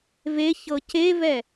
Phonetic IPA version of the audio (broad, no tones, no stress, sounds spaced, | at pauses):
v e ç ɤ c e v ɛ